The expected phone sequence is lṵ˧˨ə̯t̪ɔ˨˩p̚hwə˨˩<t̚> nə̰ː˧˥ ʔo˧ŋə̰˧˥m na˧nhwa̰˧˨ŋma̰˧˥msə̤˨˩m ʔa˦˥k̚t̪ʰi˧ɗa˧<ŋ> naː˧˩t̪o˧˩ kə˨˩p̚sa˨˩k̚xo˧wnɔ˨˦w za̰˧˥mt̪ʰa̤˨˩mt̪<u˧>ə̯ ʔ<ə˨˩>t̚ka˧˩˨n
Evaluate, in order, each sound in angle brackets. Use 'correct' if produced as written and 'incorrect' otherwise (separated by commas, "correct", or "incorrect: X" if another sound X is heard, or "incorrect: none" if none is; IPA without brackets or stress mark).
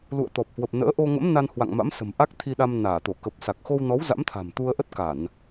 incorrect: p̚, incorrect: m, correct, incorrect: ə˦˥